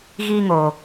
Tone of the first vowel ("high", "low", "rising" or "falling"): high